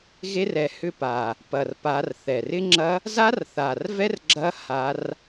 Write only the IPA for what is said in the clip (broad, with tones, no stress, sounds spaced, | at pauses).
ɣ e˦˥ r ɛ˨˦ h ʏ˦˥ p a˨˩ | p ɐ˨˩ r p a˨˦ r θ ɛ˨˩ r ɪ˦˥ ŋ͡ǁ ɐ˦˥ | z a˦˥ r θ a˨˩ r v ɛ˦˥ r ɡ͡ǁ ɐ˦˥ h a˦˥ r